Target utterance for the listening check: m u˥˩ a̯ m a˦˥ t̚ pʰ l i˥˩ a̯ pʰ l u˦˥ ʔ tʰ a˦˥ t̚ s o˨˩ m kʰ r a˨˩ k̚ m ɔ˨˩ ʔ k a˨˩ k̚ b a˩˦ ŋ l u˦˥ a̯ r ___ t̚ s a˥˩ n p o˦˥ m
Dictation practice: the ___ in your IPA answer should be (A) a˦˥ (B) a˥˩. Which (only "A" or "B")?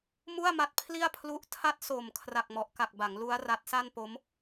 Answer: A